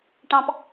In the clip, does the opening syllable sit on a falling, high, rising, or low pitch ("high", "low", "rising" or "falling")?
low